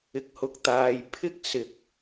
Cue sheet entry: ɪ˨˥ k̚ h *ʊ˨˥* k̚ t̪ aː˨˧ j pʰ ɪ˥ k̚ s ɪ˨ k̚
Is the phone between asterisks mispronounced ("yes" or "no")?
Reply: yes